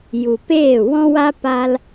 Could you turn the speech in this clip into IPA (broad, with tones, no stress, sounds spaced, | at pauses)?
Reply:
j u˨ p eː˦˨ w ɔ̃˦ w a˦ p a˦ l